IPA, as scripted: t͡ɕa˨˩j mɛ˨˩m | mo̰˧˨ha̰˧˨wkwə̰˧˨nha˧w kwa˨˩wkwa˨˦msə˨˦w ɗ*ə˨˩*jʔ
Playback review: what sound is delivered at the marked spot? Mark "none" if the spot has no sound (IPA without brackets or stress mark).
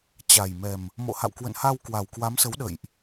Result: ə̰˧˨